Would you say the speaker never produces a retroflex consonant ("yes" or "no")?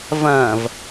yes